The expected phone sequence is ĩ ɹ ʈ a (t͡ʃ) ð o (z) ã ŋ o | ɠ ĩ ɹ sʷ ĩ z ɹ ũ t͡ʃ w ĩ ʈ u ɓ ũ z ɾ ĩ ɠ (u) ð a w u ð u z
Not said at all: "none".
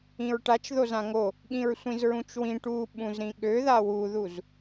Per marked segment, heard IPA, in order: t͡ʃ, z, ø

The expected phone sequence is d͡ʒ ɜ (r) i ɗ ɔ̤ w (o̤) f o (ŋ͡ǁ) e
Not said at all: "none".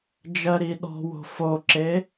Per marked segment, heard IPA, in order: ɾ, o̤, ǁ

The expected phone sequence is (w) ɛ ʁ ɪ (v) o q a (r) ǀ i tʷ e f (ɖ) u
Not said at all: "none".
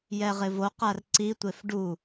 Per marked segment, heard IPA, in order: j, v, r, ɖ

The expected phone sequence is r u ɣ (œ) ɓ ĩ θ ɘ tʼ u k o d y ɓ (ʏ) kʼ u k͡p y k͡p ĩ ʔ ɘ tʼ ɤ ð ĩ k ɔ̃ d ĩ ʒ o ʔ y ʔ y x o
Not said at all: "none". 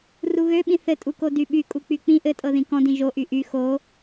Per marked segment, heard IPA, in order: ø, y

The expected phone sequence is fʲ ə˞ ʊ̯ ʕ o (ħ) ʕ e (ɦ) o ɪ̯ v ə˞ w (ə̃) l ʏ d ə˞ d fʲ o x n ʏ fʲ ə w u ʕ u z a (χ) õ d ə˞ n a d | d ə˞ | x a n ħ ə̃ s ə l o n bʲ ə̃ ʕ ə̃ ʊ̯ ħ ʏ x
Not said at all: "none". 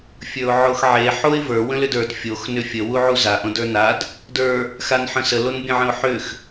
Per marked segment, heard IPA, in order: x, ħ, ə̃, ʔ

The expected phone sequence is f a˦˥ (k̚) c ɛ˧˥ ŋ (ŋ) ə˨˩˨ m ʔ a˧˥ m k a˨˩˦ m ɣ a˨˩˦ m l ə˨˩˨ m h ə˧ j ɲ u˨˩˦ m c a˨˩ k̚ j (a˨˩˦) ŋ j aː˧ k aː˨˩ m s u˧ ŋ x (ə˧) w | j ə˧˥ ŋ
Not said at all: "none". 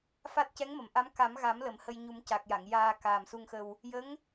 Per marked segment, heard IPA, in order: t̚, m, a˨˩˨, ə˧

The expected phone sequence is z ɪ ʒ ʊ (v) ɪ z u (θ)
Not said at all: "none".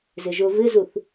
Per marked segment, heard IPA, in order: v, θ

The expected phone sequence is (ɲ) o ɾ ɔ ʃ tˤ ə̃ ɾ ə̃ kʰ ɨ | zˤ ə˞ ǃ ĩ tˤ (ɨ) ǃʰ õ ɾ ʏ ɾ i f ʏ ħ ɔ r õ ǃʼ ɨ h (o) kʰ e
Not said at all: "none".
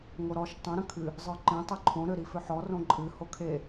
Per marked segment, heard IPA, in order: ŋ, ɨ, o

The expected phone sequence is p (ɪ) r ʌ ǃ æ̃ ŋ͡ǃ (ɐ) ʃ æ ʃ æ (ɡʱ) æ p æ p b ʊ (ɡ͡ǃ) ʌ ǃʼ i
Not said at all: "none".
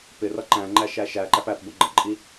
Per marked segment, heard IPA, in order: ɪ, æ, ǃ, ɡ͡ǃ

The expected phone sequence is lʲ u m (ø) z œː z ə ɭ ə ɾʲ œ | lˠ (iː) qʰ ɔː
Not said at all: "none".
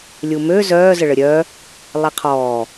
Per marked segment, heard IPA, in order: ø, i

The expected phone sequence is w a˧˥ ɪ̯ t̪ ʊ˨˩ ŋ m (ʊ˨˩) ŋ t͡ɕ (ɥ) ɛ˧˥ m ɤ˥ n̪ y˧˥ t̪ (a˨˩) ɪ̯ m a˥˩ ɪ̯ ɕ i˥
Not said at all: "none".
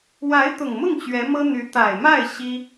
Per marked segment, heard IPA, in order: ʊ˥˩, ɥ, a˨˩

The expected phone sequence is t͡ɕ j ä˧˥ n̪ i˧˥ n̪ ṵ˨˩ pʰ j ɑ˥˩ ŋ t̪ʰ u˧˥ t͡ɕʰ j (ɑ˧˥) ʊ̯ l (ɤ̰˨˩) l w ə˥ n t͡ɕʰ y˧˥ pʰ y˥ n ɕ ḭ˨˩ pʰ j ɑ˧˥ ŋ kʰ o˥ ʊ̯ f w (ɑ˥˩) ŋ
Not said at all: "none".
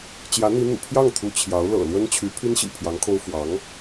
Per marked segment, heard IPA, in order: ɑ˧˥, ɤ̰˨˩, ɑ˧˥

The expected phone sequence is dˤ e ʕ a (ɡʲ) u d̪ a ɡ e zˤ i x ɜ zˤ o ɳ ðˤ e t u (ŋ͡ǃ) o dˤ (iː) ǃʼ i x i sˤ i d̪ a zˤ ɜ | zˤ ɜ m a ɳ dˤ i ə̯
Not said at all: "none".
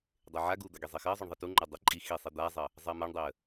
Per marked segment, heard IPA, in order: ɡ, ŋ͡ǃ, i

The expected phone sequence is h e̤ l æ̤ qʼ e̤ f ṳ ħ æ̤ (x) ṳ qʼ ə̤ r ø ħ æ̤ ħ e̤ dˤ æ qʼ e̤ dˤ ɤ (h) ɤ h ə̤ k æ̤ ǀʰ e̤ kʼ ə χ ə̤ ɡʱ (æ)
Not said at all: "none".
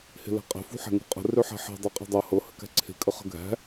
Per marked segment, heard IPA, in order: ŋ, h, æ̤

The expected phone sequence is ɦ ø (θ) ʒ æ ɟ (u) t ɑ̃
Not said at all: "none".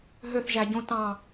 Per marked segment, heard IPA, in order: θ, ũ

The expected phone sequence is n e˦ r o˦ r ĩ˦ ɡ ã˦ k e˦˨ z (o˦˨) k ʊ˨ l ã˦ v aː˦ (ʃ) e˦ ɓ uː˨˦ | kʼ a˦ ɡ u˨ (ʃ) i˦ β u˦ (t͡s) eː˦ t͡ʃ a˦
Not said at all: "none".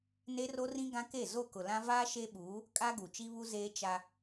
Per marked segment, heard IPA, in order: o˦˨, ʃ, t͡ʃ, z

